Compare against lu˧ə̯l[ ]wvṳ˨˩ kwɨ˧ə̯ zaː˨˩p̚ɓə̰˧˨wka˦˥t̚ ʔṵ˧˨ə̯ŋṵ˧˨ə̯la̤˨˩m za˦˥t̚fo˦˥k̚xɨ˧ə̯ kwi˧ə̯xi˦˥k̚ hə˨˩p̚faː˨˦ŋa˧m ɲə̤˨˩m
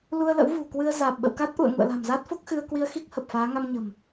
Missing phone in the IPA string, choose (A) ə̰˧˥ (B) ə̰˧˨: A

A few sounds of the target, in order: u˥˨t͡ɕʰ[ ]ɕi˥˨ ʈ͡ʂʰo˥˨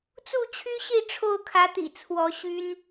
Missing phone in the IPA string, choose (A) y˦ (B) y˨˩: A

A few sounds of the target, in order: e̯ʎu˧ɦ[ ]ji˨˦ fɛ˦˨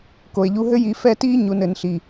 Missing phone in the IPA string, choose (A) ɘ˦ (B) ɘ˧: A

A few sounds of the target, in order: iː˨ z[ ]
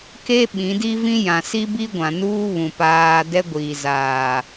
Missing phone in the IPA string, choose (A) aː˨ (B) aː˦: A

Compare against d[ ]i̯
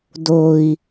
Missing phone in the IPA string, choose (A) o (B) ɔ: A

